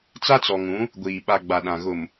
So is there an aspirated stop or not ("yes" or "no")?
no